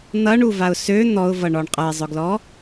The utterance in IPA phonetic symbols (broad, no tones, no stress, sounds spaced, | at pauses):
n̪ ʌ ɳ u v a ʊ̯ s ø n̪ ɔ ʊ̯ v ʌ ɳ ɔ ɳ qʼ ʌ ɪ̯ zˤ ʊ ɡ l ɔ